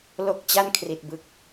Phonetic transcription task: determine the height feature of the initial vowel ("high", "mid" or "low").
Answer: mid